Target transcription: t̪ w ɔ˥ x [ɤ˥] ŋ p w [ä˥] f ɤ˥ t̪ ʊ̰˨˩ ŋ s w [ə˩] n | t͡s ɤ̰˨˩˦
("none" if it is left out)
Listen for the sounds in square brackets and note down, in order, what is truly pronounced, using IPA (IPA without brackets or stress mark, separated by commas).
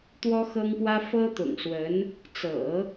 ɤ˥, ä˥, ə˧˥